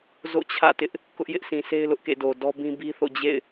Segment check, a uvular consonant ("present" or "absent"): absent